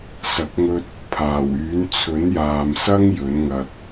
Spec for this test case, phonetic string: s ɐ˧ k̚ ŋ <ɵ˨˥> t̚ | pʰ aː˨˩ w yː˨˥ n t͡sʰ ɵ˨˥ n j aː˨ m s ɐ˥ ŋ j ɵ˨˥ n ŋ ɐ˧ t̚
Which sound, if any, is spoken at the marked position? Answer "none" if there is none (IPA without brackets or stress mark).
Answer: ɵ˥